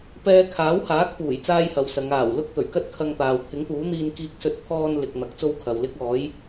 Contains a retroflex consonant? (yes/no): no